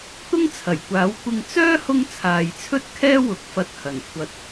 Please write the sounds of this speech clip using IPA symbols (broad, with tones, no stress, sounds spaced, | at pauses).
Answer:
t̪ ʊ˥ ŋ t͡sʰ ɐ˨˩ j kʷ aː˨˥ w kʷ ɪ˧ ŋ t͡s œː˥ h ʊ˧ ŋ t͡sʰ aː˨ j t͡sʰ ɵ˥ t̚ kʰ ɛː˥ w ʊ˨˥ k̚ f ɐ˧ t̚ h ɐ˨˩ n kʷʰ ɐ˨ t̚